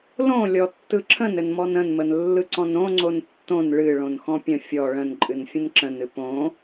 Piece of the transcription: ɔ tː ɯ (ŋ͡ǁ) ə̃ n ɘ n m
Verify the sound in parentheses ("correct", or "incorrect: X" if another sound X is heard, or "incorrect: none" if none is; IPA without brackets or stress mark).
incorrect: ǁʰ